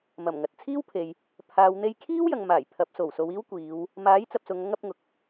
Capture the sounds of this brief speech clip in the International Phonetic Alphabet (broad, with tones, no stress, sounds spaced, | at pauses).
m ɐ˨˩ m ŋ ɐ˨ t̚ t͡sʰ iː˥ w pʰ e˨ j | pʰ aː˨ w n̪ e˧ j kʰ iː˥ w j ɐ˨ ŋ m aː˨˩ j pʰ ɐ˨˥ p̚ s o˨˩ w s o˨˧ w iː˥ w kʷ iː˨˧ w | m aː˨˥ j t͡s ɐ˨ p̚ s ʊ˨˧ ŋ ɐ˥ ŋ ɐ˨˥ p̚ ŋ ʊ˨˥ k̚